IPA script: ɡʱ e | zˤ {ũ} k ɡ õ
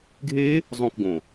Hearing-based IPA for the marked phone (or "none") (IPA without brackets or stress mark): õ